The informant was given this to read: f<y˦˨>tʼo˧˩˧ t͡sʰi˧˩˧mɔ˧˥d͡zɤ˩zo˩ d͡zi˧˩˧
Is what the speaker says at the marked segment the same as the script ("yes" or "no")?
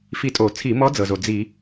no